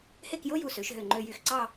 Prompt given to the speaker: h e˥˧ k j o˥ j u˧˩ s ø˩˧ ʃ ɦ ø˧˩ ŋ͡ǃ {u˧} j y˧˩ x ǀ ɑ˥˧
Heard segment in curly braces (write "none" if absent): ø˧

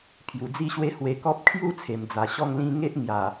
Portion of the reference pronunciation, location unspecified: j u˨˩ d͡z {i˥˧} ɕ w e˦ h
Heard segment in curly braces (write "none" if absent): i˥˧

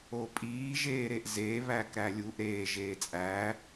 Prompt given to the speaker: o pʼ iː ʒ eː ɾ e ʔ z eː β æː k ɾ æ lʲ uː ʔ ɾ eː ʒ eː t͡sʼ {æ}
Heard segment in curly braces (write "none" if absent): æː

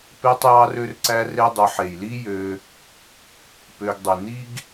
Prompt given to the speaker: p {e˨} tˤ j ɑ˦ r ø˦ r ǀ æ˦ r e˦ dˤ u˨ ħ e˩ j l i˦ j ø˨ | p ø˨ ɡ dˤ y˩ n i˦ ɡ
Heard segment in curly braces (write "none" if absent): e˦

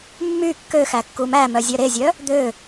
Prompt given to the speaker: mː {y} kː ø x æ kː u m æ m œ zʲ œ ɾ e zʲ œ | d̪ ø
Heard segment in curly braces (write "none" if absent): y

